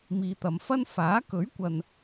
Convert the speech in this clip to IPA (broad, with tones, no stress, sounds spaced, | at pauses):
m iː˨ t̪ ɐ˨ m f ɐ˥ n f aː˨˥ k ɵ˨˥ ɥ kʷ ɐ˨ n